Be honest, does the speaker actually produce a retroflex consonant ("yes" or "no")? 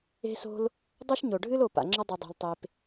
yes